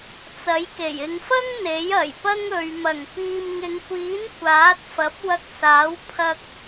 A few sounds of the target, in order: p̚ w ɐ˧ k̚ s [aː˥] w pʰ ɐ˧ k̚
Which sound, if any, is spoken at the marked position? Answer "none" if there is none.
aː˨˥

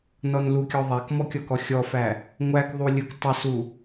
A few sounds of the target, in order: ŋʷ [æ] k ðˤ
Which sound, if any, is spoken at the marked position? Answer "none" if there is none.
æ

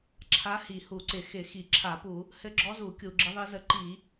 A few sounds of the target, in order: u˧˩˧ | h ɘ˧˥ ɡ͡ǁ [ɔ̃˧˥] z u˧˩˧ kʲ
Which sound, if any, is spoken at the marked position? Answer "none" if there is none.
ɔ˧˥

